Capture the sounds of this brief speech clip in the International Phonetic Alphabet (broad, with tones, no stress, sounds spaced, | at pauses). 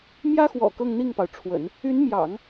m j ä˥ x w ɔ̰˨˩ k ɤ˥˧ ŋ n̪ i˥˩ ŋ p ɑ˩ ʊ̯ ʈ͡ʂʰ w ə̰˨˩˦ n | y˧˥ n m j ɑ̰˨˩˦ ŋ